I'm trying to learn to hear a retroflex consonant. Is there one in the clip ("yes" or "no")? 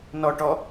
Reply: yes